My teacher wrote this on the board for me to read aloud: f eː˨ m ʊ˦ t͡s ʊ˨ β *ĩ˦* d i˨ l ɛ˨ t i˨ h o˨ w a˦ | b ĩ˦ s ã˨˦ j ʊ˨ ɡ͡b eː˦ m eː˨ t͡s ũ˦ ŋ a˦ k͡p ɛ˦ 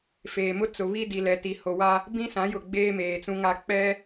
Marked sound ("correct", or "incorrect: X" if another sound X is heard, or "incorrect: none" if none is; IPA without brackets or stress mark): incorrect: i˦